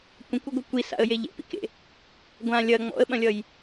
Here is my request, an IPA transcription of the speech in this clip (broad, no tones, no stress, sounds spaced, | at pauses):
kʷ ɐ̃ kʷ ɵ ɡʷ i kʷ i s a̰ ə̯ j e ʎ ḛ p ḭ k ḛ | ɡʷ ã lʲ ɐ ŋ͡m ɔ̰ ə̯ ɓ ɐ̃ lʲ ʌ j